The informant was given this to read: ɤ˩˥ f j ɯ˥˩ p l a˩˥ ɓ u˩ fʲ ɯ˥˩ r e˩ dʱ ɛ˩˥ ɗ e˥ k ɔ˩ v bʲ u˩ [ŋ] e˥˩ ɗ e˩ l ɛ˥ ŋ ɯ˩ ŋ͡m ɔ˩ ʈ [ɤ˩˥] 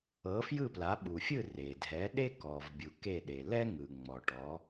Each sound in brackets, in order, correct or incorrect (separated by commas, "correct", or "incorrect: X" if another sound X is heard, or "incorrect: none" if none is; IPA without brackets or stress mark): incorrect: k, incorrect: ɔ˩˥